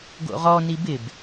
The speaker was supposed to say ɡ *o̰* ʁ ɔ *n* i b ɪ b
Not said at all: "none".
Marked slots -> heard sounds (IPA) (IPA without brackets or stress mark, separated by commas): o̰, n